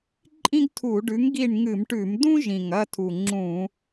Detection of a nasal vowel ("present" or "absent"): present